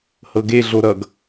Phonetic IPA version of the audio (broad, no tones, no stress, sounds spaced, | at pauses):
h ɤ ɡ e ɮ o ɾ ʌ ɡ